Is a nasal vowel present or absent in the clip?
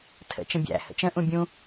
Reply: present